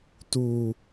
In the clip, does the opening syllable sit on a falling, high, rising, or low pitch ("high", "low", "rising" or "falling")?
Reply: low